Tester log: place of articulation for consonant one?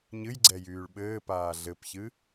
palatal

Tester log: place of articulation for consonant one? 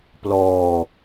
labial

